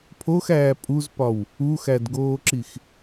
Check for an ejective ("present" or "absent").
present